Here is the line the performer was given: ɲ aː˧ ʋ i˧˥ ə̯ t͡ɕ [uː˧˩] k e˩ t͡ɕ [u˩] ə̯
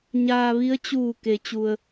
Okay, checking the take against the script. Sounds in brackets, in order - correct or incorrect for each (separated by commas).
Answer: correct, correct